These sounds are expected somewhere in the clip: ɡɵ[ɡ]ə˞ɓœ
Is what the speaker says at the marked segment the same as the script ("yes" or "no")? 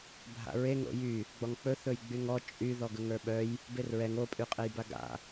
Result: no